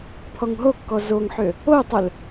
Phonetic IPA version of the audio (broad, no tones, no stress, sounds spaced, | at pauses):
pʰ ɔ ŋ ɦ o kː ɔ z o ŋ ħ ʏ | o tˤ ʏ l